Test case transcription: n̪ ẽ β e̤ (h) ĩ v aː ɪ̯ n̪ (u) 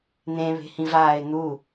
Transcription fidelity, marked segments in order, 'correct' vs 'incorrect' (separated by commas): correct, correct